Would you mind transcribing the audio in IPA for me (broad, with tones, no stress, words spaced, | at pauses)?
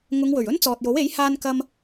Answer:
ŋʊ˨˧ŋwɵ˨˩ɥ ɵ˥nt͡sɔː˨t̚jo˨˥we˨˥j haː˥nkɐ˥m